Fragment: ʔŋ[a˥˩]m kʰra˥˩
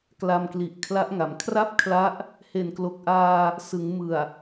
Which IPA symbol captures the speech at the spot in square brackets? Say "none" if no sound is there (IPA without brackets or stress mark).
a˩˦